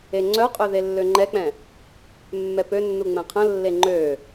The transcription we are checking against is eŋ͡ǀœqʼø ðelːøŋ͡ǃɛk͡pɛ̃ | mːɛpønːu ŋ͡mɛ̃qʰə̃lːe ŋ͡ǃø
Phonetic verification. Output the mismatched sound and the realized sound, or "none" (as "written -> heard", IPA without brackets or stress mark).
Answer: none